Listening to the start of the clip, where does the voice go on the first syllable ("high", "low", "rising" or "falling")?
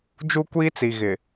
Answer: high